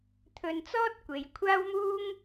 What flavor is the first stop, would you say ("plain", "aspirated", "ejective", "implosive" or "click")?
aspirated